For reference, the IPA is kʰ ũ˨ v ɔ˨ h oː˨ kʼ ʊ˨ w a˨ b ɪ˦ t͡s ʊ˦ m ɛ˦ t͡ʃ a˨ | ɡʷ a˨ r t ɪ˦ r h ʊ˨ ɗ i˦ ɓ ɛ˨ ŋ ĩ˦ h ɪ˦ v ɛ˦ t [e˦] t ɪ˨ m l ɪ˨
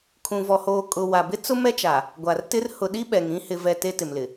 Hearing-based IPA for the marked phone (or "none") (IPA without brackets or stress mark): e˦